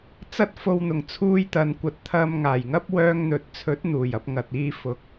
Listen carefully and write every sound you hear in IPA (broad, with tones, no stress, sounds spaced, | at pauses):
t͡s ɐ˥ t̚ f o˧ w n̪ ʊ˨˩ ŋ t͡sʰ uː˧ j t̪ ɐ˨ n kʷ ɐ˨ t̚ t̪ʰ ɐ˧ m ŋ aː˨˩ j ŋ ɐ˥ p̚ w œː˧ ŋ n̪ ɵ˨ t̚ t͡sʰ ɵ˨˥ t̚ n̪ uː˨˩ j ɐ˧ p̚ ŋ ɐ˨ t̚ iː˧ f ʊ˨˥ k̚